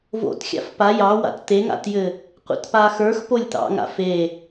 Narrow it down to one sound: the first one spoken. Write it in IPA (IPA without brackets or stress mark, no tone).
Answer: v